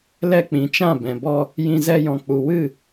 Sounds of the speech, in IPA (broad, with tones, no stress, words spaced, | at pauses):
lɛ˧k͡pĩ˨t͡ʃã˦˨ bɛ̃˨bɔ˧ | jĩ˧zɛ˧jɔ̃˨ k͡pu˨wɨ˦˨